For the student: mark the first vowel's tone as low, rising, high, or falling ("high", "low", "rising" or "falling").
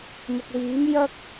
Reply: low